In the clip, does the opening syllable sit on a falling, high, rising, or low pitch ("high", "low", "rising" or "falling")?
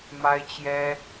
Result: high